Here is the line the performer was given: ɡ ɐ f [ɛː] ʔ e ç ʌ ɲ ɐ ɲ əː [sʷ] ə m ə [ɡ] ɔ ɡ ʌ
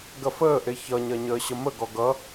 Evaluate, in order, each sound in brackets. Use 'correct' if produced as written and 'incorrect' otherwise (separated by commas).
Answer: incorrect, incorrect, correct